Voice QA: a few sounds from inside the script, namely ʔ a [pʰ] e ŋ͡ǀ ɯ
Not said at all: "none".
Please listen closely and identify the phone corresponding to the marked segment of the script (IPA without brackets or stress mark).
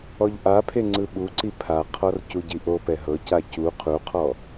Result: pʰ